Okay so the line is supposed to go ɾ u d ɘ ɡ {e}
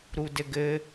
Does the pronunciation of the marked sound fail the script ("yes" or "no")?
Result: yes